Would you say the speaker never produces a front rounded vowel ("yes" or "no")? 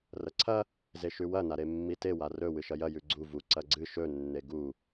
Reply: yes